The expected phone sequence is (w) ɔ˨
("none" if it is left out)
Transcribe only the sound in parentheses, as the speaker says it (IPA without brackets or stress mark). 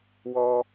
w